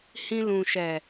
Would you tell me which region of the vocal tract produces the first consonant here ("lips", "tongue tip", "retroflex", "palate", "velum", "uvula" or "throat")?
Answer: throat